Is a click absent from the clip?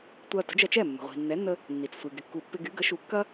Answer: yes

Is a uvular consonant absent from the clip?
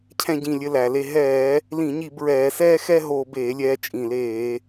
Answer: yes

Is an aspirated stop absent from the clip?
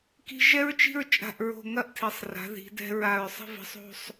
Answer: no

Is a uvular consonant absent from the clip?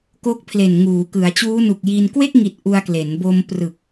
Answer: yes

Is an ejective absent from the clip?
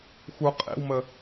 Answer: no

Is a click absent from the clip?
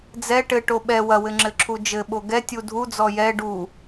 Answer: no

